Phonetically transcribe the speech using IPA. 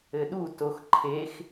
ɘ ɗ u t o x ǃʰ e x

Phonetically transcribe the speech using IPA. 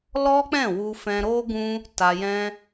l ɔ˦ k͡p ɛ̃˦˨ w u˧ f ɛ̃˧ ɾ o˦ ɡ ũ˦ | t a˧ j ɛ̃˦

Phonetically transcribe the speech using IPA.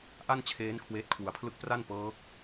ʔ a˥˩ n t͡ɕʰ eː˦˥ n kʰ w eː˦˥ t̚ kʰ w u˧ a̯ pʰ l ɯ˥˩ k̚ p r a˥˩ n p ɤː˦˥ k̚

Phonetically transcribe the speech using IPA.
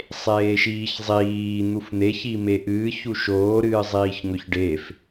sˤ eː ʃ iː ç zˤ iː n̪ u f n̪ e ç i m e ʔ ɨː ç u ʃ oː ɾ ɨː zˤ iː ç ŋ ɵ ç ɖ e f

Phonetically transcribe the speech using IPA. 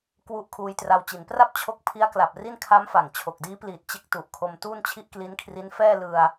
k w u˦˥ ʔ kʰ uː˧ j t r a˧ w t͡ɕ i˩˦ n p r a˥˩ p̚ t͡ɕʰ o˦˥ k̚ pʰ i˦˥ a̯ k l a˨˩ p̚ r i˥˩ n kʰ a˦˥ m f a˨˩ ŋ t͡ɕʰ o˨˩ k̚ d iː˦˥ p l iː˨˩ t̚ t͡ɕ e˦˥ k̚ t u˨˩ ʔ kʰ o˧ m t uː˥˩ n t͡ɕʰ i˥˩ ʔ k l i˦˥ n kʰ r i˦˥ n f ɛː˥˩ l ɯ˧ a̯

